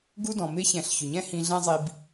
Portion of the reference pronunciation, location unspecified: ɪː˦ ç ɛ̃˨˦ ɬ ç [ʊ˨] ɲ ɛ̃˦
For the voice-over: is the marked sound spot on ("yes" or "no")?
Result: yes